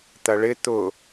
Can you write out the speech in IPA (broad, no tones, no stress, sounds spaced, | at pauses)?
t̪ ɐ ɭ ɪ t̪ ʊ